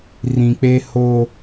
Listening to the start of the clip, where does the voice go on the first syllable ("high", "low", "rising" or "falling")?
low